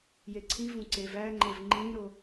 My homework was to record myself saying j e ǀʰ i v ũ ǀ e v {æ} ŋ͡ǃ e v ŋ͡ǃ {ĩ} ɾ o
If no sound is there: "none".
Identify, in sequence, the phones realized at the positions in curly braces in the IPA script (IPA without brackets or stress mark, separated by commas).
æ, ĩ